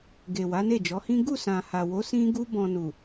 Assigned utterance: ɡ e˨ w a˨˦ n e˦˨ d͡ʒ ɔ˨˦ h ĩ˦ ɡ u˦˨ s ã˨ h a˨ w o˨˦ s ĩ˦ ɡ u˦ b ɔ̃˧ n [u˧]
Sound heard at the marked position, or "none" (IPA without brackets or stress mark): u˨